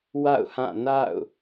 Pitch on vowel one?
falling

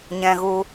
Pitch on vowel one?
high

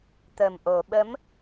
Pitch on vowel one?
low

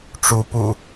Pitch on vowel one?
rising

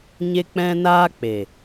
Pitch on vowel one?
high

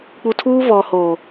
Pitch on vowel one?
low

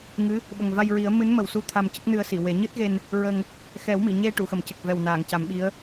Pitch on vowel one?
rising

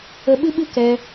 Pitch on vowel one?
high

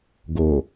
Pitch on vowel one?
low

